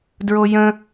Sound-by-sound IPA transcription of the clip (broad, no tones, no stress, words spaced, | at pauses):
dɹojə̃